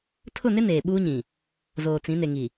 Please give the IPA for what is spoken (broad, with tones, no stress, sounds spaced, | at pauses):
tʰ ʊ˦˨ n ɪ˦ n eː˨ ɓ uː˦ ɲ ĩ˨ | z oː˨ t͡s ĩ˨˦ n e˨ ŋ i˨